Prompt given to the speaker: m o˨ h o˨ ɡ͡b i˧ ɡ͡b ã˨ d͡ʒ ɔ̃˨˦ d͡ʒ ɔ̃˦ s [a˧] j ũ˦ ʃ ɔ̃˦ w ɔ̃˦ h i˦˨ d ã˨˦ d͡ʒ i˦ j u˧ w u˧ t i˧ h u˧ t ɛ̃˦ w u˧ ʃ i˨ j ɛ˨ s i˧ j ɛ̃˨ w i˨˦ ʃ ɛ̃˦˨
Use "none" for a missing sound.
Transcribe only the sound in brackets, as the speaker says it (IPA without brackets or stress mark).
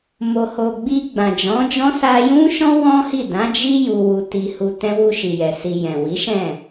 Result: a˧